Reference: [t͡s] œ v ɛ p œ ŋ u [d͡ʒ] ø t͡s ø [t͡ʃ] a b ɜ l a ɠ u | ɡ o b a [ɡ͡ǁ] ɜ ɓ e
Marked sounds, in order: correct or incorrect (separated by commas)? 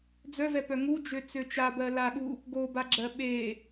incorrect, correct, correct, correct